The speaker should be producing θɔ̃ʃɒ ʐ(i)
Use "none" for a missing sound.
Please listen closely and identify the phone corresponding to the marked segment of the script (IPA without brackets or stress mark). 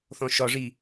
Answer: i